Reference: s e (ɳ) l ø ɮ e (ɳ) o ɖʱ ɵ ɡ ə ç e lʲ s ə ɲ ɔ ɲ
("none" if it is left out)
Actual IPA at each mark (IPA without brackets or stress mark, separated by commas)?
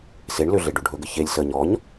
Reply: ɳ, ɖ